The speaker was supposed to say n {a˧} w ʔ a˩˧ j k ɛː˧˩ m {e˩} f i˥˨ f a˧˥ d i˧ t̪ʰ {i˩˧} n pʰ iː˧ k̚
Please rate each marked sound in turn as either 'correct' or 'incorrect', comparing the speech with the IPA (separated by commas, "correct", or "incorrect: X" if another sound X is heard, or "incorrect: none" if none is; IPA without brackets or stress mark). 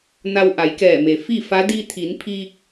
correct, correct, correct